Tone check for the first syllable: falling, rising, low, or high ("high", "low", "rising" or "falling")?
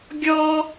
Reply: high